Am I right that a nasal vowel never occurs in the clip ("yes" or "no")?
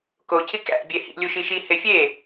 yes